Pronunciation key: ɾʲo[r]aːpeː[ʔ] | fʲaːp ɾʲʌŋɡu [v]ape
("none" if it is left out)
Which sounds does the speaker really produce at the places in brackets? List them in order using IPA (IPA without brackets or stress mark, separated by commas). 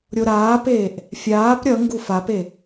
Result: ɾ, ʔ, f